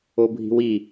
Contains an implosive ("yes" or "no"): no